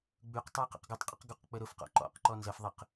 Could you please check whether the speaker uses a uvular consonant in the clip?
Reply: yes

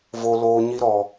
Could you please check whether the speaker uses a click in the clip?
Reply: no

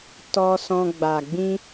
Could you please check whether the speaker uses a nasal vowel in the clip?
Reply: yes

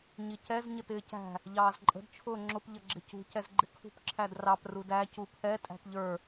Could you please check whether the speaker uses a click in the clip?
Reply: yes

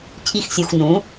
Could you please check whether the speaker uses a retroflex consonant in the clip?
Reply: no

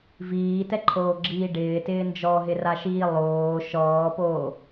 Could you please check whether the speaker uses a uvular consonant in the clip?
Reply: no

